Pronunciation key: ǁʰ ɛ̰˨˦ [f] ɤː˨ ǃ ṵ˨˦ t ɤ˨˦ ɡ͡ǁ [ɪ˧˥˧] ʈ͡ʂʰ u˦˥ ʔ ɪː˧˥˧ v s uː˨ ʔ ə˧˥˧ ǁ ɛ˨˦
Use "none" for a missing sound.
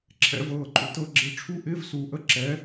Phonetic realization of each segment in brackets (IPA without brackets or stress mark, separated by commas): v, ɪ˧˥˧